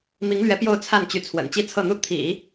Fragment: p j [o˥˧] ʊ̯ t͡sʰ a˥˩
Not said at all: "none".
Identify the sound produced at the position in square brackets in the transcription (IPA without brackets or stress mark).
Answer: o˥˧